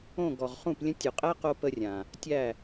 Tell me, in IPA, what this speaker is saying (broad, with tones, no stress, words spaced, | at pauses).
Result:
õ˦˨ ɡɔ˨ʁχũ˦˨plʲə̃˦ tʲo˨qʼæ˦qo˧ pə˦rʲã˨ | tʲæ˦˨